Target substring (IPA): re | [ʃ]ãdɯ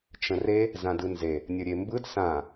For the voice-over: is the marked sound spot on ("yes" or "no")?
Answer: no